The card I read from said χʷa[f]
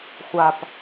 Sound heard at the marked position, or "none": p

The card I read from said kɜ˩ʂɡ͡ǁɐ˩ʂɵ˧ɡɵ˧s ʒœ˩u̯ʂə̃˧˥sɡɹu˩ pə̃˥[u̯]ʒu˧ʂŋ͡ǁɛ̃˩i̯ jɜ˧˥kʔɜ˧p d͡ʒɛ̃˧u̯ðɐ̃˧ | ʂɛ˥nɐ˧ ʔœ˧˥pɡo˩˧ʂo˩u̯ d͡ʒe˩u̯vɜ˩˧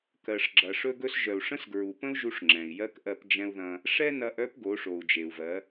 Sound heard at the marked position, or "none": u̯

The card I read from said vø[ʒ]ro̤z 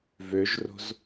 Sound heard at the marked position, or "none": ʒ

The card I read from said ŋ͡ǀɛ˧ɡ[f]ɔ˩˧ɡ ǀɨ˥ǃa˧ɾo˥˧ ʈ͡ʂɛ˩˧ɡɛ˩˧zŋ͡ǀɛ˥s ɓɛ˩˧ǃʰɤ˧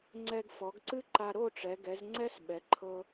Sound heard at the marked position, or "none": f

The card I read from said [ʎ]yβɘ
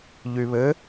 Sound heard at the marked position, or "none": ʎ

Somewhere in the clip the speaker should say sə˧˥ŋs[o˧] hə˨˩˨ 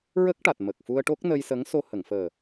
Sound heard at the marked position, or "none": o˧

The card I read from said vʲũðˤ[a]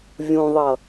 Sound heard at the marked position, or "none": ʌ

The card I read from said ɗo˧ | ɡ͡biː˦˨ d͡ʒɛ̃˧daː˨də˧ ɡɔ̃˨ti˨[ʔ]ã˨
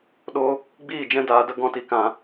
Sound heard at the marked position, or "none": k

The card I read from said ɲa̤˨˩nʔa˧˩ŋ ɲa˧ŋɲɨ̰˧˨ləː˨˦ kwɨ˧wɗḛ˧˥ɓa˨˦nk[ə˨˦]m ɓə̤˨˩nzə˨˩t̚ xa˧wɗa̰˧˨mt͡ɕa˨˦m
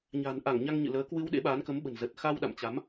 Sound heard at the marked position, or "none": ə˨˦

